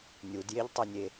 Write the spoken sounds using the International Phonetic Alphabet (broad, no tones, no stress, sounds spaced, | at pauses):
nʲ u d j e ʎ tˤ e nʲ e